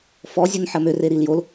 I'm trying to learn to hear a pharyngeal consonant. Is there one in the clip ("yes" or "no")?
yes